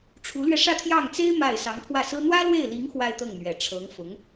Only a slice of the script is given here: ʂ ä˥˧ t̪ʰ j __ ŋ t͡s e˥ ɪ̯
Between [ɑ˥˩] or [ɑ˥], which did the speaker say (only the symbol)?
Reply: ɑ˥˩